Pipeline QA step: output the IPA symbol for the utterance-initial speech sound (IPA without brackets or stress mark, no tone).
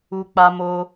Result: u